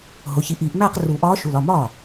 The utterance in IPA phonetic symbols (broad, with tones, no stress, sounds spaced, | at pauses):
ɦ o˩˧˩ ç i˨˩˦ ʔ iː˨˩˦ ʔ m æː˥˧ q r u˨˩˦ ʔ ɒː˧˥ ʃ u˩˧˩ l ɒ˩˧˩ m ɒː˥˩